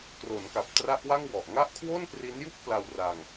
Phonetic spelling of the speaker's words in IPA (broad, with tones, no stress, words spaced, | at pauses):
kro˩˦nka˨˩p̚tra˦˥ʔwa˥˩ŋ wɔ˨˩ʔ ŋa˥˩ʔ kʰwo˥˩npri˦˥nju˥˩k̚ pla˧wra˧ŋ